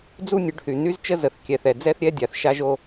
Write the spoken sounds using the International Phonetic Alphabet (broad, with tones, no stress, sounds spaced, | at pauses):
d͡z u˦ nʲ ə˨˦ ɖ θ y˨ n y˦ z t͡ʃ ə˦ z ə˨ θ kʲ ɛ˨ θ ɛ˨ d͡z ɛ˦ θ ɾʲ ɛ˦ dʲ a˨ θ ʃ a˦ ʒ o˦